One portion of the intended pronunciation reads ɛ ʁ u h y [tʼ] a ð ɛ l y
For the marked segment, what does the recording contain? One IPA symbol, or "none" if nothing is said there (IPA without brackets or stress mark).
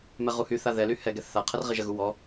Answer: θ